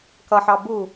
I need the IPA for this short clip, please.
k ʌ ħ ɑ b u

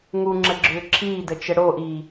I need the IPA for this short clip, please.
ŋ u ŋ͡ǁ ə ɡ͡ǁ ʏː ǁʰ iː d ə t͡ʃ ə ɽ o ʔ iː

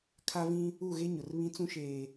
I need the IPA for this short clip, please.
kʰ a˦ v ĩ˦ | u˦˨ ɣ e˦ ɲ ʊ˨ r β ĩ˦ t͡s ũ˦ ʃ eː˨

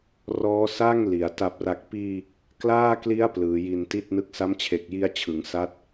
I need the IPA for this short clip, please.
r ɔː˦˥ s aː˥˩ ŋ l i˩˦ a̯ t a˨˩ p̚ r a˨˩ k̚ p iː˧ | k l aː˥˩ k l i˦˥ a̯ p l ɯː˩˦ j i˧ n t i˥˩ t̚ n ɯ˦˥ k̚ s a˦˥ m t͡ɕʰ e˨˩ k̚ j i˧ a̯ t͡ɕʰ ɯ˩˦ ŋ s a˦˥ t̚

